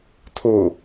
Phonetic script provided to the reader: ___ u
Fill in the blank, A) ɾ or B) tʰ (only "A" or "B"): B